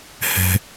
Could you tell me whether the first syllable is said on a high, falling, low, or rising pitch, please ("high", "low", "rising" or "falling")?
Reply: high